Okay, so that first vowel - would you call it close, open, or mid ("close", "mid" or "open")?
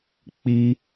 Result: close